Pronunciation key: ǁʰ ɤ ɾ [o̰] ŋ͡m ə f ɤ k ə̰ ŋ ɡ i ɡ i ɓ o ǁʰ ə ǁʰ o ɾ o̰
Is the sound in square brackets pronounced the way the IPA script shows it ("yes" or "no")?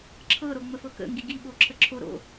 no